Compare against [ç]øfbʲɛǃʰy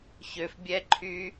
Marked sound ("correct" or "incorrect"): correct